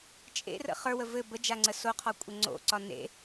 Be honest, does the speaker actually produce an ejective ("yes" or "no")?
yes